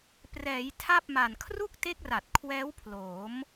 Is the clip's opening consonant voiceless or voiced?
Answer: voiceless